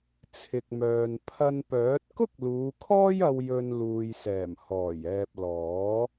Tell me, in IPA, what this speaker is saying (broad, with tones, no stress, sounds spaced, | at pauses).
t͡sʰ ɪ˨ k̚ m œː˨ n pʰ ɐ˧ n p œː˨˥ t̚ k ʊ˥ k̚ l uː˨˧ kʰ ɔː˥ j ɐ˧ w j ɵ˧ n l uː˨ j s ɛː˨˩ m h ɔː˨˩ j ɛː˨ p̚ l ɔː˨˥